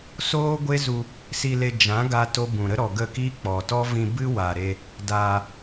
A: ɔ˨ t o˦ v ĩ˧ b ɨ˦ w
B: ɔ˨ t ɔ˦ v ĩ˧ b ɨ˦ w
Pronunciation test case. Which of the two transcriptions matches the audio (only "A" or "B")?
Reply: B